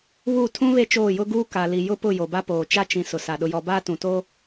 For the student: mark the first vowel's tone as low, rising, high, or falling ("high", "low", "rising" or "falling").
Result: falling